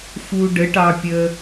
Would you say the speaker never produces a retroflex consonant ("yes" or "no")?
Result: no